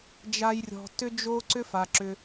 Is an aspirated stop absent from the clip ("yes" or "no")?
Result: yes